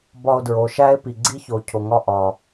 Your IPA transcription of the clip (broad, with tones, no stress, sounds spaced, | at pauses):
b ɒ˧ o̯ d ɹ o˨ ʃ æ˦ e̯ p i˨ ɡ͡ǀ i˦ ç o˨ cʰ o˨ ŋ ɒ˦ ʔ ɒ˨